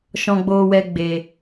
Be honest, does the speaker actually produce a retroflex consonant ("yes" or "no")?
no